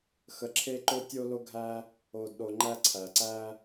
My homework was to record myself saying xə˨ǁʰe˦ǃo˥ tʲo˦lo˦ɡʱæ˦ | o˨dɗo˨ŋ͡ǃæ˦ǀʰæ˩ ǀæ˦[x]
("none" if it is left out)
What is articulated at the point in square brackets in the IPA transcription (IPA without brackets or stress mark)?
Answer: none